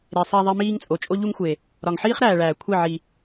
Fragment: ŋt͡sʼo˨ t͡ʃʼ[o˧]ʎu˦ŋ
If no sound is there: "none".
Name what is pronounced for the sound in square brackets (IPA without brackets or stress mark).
o˦